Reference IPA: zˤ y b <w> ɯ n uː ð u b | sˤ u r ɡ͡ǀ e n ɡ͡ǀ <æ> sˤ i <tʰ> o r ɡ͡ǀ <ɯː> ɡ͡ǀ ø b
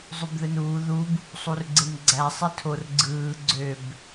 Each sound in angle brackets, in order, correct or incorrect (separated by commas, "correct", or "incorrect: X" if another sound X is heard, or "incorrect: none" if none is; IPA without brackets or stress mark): incorrect: ð, correct, correct, correct